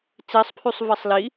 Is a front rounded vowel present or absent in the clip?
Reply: present